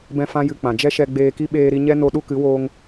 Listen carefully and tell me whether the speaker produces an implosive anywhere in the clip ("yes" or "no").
yes